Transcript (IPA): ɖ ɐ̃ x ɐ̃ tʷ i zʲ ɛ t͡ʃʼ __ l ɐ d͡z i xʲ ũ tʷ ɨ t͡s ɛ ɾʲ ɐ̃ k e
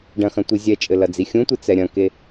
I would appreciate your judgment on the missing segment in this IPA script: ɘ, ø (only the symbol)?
ɘ